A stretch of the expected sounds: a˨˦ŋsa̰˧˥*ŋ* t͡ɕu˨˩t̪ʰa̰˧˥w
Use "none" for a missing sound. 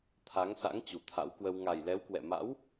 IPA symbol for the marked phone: ŋ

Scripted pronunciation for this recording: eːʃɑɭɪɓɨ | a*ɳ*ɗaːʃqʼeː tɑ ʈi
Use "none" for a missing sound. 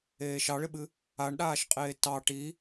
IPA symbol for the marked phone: ɳ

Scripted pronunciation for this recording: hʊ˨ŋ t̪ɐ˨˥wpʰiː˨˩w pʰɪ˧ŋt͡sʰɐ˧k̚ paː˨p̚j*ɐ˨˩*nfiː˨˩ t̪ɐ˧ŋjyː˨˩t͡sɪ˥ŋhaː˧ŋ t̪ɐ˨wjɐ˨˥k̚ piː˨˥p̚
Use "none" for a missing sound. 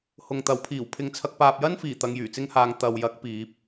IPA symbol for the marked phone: ɐ˥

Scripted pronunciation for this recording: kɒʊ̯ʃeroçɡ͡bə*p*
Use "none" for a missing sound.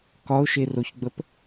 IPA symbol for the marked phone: p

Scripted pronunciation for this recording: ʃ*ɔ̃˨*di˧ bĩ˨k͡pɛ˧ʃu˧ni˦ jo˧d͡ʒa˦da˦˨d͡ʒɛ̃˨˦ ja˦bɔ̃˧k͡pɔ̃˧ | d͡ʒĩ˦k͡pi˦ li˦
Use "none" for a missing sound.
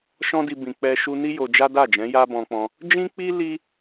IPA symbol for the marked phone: ɔ̃˦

